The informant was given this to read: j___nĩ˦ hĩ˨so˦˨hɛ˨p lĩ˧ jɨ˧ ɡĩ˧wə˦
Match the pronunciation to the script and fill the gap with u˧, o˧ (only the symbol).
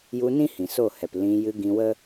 u˧